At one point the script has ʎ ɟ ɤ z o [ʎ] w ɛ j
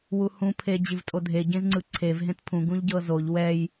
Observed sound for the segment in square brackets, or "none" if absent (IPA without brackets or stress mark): ʎ